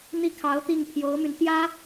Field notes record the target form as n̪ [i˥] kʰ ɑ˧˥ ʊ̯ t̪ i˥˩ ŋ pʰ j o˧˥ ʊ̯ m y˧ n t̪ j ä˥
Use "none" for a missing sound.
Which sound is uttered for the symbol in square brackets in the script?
i˥˩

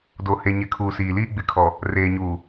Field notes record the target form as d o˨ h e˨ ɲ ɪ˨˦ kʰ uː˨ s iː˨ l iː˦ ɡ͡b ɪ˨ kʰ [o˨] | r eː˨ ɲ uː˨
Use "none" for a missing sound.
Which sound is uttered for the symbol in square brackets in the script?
ɔ˨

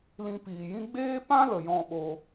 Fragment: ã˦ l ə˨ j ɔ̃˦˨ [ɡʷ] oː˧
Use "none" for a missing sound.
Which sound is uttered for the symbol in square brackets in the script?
ɓ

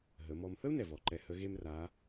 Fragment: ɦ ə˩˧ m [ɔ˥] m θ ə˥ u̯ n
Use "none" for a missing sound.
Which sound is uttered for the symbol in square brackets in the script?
ɔ˧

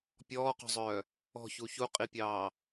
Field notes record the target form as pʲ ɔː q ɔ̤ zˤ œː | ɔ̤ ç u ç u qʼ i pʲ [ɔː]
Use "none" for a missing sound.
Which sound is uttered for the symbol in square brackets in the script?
ɑː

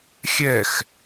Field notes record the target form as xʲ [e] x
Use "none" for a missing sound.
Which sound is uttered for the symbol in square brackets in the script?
ɛ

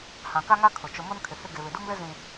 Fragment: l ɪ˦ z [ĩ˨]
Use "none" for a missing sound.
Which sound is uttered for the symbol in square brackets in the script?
ĩ˨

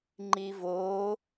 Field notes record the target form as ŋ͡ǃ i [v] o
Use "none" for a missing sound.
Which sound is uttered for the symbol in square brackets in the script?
v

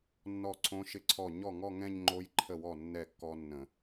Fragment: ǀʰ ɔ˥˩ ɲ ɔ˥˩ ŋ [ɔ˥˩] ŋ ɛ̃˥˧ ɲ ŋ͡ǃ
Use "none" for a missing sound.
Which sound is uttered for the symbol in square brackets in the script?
ɔ˥˧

